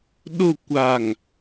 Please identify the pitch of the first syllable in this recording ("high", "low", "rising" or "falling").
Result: falling